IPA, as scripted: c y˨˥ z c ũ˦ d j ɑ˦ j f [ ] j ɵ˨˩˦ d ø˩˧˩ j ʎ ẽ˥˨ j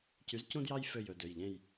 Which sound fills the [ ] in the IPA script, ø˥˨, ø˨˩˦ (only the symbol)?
ø˥˨